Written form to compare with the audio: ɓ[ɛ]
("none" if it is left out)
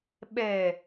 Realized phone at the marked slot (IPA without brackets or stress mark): ɛ